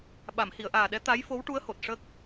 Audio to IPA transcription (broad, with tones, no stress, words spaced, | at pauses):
ɓa˨˩˨mhi˨˩˨ə̯ʔaː˨˩ɗɛ˧˥ t̪a˧˥j fo˧˥wʈu˧˥ə̯ho˨˩t̚ ʂə˦˥k̚